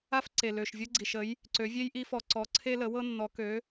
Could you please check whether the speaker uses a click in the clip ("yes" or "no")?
yes